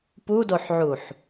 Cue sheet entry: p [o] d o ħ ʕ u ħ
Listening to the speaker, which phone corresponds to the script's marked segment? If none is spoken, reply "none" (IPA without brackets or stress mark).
u